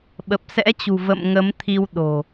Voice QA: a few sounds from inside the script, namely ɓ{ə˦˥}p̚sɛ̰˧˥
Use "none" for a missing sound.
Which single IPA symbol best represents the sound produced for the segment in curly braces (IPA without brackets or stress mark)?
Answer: ə˨˩